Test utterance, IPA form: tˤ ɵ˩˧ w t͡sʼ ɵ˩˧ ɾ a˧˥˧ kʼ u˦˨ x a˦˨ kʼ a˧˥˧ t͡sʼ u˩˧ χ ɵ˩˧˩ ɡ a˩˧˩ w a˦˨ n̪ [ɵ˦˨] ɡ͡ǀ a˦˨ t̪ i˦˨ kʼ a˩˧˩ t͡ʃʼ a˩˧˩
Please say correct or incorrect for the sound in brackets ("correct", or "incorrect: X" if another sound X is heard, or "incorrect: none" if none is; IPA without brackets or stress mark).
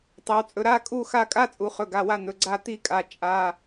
incorrect: ɵ˩˧˩